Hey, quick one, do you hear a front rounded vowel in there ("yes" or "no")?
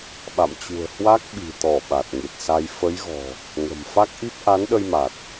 no